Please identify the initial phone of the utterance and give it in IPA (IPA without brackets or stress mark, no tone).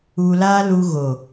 u